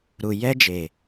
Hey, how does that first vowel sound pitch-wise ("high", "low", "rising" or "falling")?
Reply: low